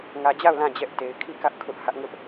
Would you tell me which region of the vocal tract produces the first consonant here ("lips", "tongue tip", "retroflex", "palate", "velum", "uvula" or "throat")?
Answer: velum